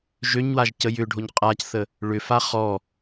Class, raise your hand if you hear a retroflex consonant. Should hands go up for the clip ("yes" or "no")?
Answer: yes